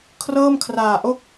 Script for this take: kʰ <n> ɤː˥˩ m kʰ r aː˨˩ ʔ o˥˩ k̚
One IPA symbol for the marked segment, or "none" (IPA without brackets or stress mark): r